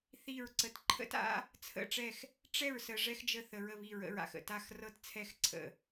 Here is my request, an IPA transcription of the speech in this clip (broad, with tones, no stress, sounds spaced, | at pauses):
θ i˥˨ ɹ ǀ ə˧ t ǃʰ ə̰˥ t a̰˥ | t͡sʰ ə̰˥˨ ʈ͡ʂ ɛ˥˨ x | ʈ͡ʂ ɛ˥˨ ɹ s ə˧ ʐ ɛ˥ x d͡ʒ ə˥˨ θ ə˧ ɹ ə˥˨ β i˥˨ ɹ ə̰˧ ɹ a̰˧ x ə̰˥˨ t a˥˨ x r ɤ˥ t t͡sʰ ɛ˥˨ x ǀʰ ə̰˥˨